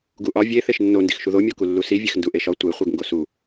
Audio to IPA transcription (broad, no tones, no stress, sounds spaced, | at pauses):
ɡ u ʔ ɒ vʲ e θ e ʃ nː o n d i x ʃ u ð o mʲ o k u lː u s i vʲ e x n d u ʔ e ʃ ɒ tʷ e χʷ e ɡ ŋ ɡ o s u